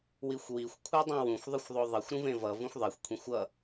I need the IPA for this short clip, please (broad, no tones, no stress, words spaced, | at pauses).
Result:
wixʷwixʷ kʷʰɛdˤĩwũxʷ ðˤɯxʷðˤoðˤʌxʷ ɾũvẽvʌ vũxʷðˤɛxʷ kʷʰĩxʷʌ